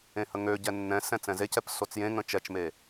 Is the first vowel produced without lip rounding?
yes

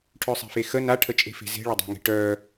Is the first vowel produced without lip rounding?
no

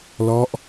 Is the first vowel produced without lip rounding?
no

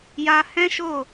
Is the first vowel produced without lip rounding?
yes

